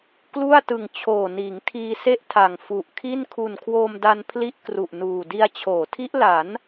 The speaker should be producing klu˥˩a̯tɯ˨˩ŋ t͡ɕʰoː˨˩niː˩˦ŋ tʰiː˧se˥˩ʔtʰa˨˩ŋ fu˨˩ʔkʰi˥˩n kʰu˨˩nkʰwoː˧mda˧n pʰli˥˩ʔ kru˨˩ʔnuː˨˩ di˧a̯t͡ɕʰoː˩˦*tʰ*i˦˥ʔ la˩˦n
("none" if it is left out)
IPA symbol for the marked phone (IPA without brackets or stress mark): tʰ